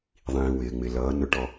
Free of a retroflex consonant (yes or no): no